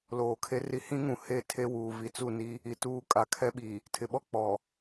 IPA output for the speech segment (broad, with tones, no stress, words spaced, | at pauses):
loː˨kʰe˦ri˦ hĩ˦ŋũ˨ he˦˨tʰe˦wuː˨ vi˨t͡su˦˨ni˦ | i˨ tuː˦ kʼa˨kʰɛ˦ɓi˨ | tʰɪ˨ɓɔ˦ k͡pɔ˨